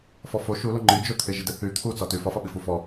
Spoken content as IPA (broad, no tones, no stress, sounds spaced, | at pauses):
f ɔ f o ʃ u l o ŋ͡ǃ i d͡ʒ o t̪ʰ ɪ ʒ ɪ d ɪ θ y t̪ʰ u t͡s ɒ t y f ɒ f ɒ ɓ i f u f ɔ